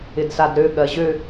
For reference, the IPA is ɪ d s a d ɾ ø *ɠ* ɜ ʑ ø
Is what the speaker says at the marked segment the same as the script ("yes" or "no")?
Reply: yes